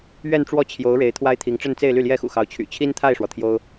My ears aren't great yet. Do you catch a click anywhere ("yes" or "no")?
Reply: no